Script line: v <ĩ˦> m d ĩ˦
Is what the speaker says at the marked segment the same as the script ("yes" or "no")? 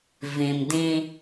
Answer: no